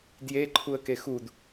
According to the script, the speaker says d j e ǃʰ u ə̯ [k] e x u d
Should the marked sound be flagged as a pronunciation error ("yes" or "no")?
no